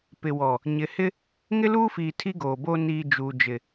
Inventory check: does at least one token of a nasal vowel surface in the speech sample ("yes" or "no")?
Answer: no